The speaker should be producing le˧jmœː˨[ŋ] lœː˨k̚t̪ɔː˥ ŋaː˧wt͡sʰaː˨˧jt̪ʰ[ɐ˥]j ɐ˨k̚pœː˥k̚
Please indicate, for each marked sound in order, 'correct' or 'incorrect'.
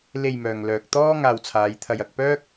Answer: correct, incorrect: ɐ˧

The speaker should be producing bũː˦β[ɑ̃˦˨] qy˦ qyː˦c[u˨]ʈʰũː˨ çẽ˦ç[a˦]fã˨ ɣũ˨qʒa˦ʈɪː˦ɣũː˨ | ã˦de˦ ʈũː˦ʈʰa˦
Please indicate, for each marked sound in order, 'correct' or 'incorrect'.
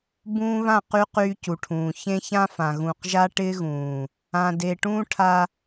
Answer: incorrect: ã˦˨, correct, incorrect: ã˦

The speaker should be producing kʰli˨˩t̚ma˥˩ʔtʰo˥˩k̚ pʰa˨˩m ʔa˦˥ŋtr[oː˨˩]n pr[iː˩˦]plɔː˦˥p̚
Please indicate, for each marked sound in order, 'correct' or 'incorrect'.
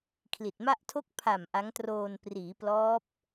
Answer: incorrect: oː˧, correct

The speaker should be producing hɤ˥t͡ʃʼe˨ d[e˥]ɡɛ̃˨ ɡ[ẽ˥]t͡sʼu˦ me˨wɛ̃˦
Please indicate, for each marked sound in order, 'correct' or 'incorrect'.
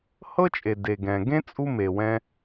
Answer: incorrect: e˨, correct

